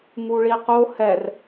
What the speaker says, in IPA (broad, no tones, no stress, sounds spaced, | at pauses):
ŋ u ɭ i q o h ɛ r